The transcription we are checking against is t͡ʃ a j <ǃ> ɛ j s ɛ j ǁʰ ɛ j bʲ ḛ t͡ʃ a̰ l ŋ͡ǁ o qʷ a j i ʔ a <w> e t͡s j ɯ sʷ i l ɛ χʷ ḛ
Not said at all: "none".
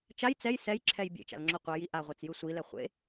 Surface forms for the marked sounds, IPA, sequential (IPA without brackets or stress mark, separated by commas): t͡s, ʁʷ